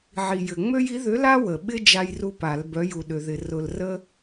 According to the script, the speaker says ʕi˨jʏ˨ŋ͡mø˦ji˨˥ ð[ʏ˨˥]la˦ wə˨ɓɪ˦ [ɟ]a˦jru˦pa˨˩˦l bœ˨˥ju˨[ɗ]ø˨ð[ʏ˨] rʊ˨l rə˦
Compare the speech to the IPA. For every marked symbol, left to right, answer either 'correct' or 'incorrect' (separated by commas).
correct, incorrect, correct, incorrect